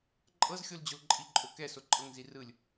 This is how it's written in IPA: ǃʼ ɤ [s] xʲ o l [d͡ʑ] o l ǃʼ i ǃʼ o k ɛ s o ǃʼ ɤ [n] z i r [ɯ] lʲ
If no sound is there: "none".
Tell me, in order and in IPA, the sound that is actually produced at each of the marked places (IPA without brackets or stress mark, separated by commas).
z, d͡ʑ, ŋ, ɯ